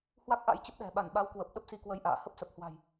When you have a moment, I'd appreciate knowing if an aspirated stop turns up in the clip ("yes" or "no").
no